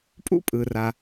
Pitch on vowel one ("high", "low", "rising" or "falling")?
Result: high